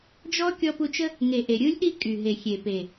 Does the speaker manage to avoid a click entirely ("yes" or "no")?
yes